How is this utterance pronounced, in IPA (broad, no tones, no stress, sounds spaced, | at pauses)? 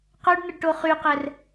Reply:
q œ ɖ n̪ ə ɖ ʈ o χ y q ɛ r